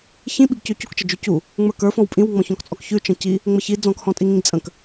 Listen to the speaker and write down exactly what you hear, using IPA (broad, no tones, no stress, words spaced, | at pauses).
çĩɓiɡcʉ cukt͡ʃəd͡ʒʉ cu | ŋ͡mə˞kə˞fɔ̃w pʼĩwŋ͡mɔ̃ çɔ̃kt͡sʼɔkçʉ t͡ʃə̃ci | ŋ͡məçi d͡zɔ̃khɔ̃tʼiŋĩɡ t͡sʼə̃k